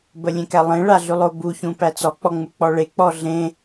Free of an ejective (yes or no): yes